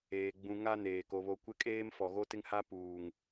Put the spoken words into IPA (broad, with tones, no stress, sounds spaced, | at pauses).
eː˨ ɡ͡b ũ˨ ŋ a˦ n eː˨ k o˨ β o˨ kʷ ɪ˦ kʼ eː˦ m f ɔ˨ ɣ o˦ t ɪ˦ ŋ h a˦ p uː˨ ŋ